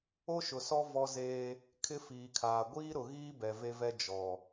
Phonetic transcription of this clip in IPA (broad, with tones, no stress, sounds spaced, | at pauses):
o˦ ʃ ʊ˨ s ɔ˦ v ɔ˦ z eː˦ | kʰ ɪ˦ f iː˨ kʰ aː˨ ɡʷ iː˦ ɾ ʊ˨ ɣ iː˦ b ɛ˨ v e˦ v ɛ˦ d͡ʒ ɔ˨